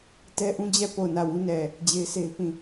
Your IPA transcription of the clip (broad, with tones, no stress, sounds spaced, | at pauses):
t ɛ˦ ʔ ũ˦ d͡ʑ ɛ˦˨ p o˦˨ ʊ̯ n ä˦˨ w ũ˦ n ɛ˨ | d͡ʑ e˦ ɪ̯ s e˦ ɪ̯ p ĩ˦˨